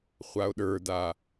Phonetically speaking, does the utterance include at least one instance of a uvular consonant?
yes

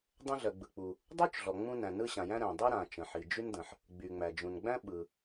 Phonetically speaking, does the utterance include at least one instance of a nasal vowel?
yes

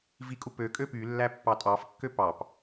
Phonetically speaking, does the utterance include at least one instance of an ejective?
yes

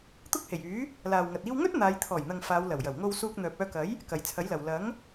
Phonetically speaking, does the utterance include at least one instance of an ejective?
no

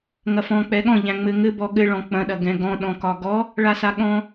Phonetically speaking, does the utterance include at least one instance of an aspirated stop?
no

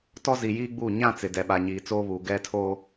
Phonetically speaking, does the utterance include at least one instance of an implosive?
yes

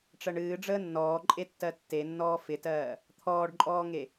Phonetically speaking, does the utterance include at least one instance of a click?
yes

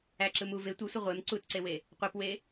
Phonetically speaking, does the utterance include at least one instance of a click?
yes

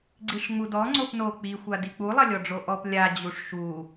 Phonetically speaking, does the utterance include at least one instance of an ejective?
no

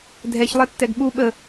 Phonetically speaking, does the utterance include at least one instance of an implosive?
yes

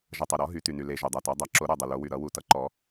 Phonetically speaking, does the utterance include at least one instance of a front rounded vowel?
yes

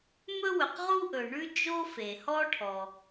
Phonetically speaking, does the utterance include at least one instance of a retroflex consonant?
yes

